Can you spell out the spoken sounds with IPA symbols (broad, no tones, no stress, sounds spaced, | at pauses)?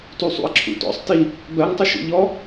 t u sˤ ṵ ɐ̯ ǁʰ ṵ t ɔ̰ sˤ t i | b ɜ ŋ tˤ ɪ ʃ ṵ ʎ ɔ